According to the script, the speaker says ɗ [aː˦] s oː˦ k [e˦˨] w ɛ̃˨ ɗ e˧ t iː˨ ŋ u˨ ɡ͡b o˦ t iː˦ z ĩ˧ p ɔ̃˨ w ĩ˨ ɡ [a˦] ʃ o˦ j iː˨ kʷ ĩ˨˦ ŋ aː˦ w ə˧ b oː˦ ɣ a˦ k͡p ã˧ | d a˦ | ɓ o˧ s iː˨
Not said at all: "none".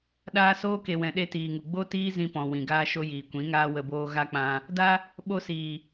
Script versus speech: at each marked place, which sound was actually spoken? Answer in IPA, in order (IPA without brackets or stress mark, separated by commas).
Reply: aː˦, e˨, aː˦